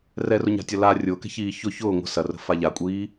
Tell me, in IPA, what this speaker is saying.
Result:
r ɛ r ʊ ɲ a̤ tʲ ɐ l a rʲ ʊː k ɛ̤ ç iː ç ʊ ç ʊː ŋʷ ə̤ s ɐ r ə̤ f a ʎ a kʷʼ iː

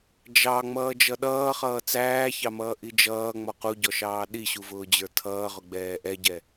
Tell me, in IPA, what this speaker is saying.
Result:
d͡ʒ ɑ ŋ͡m ʌː d͡ʒ ʌ ɗ ʌː χ ʌː t͡s æː ç ɑ m ʌː ʔ i d͡ʒ ʌː ŋ͡m ɔ q u ɟ ɔ ʃ ɑː ɗ i ɕ u v ʊː d͡ʑ ə˞ tʰ ʌː ʁ ʊ ɡ͡b ɛː ʔ ɛ ɟ ɛ

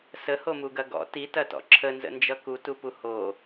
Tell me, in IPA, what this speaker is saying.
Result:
s ə h o m u ɡ ɐ ɡ ɔ̰ t i t ɐ t ɔ̰ ǁʰ ə n z ə̰ n d͡ʒ ʌ k u t u p u h o

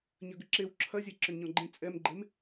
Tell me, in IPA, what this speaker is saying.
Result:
ɲ ɐ ɡ ʏ ǁ e w ǁʰ ɐ zʲ ɛ ǁ ʏ n ɲ ɔ̃ ɡ͡ǃ ẽ t͡sʼ ɛ m ɡ͡ǃ e m

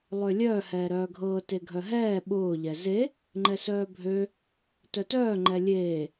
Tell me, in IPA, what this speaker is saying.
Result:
lˠ ø lʲ œː h ɛː ɾ œː ɡʱ ɤː t e ɡʱ œ ɦ ɛː ɓ ʊː ʎ ɛ z e | ŋ͡ǃ ɛ s œː bʱ ø | t œ t œː ŋ͡ǃ ɛ lʲ eː

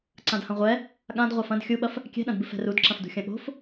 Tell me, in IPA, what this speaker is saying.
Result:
ǀ ã d h ɐ̃ ʁʷ ɛ | ɠ ã d ʁʷ a f ɐ̃ d xʲ u ɓ ɐ f | kʲ ɛ̤ ɗ ɐ̃ d b ɨ f ɛ̤ r u d ǁ ɐ̃ f d ṳ xʲ ɐ̃ ɠ o̤ f

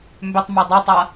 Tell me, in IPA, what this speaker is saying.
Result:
m b ʏ tˤ m o dˤ ɛ tˤ a

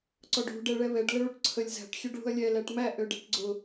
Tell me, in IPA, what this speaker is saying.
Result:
ǀ ɔ ɖ ṳ ɖ ɛ ɭ ɛ β ɛ ɖ l ə ɭ u ʈ ǀʰ ə lʲ z æ̤ ʈ xʲ ø ɖ ɭ ṳ ɐ̯ lʲ ɛ l æ ʈ m æ ʔ ø ɖ æ̤ ʈ ɡ͡ǀ ʊ

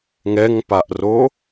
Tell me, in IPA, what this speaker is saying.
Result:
ŋ ɛ ŋ p a ʔ r o

